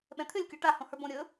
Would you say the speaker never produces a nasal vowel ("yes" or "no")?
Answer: no